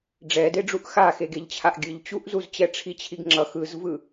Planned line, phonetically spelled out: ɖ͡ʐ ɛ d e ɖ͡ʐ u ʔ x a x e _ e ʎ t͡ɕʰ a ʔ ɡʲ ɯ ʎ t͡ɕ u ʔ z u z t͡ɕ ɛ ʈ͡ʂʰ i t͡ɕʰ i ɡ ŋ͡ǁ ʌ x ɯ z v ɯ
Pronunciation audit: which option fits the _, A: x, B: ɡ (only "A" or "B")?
B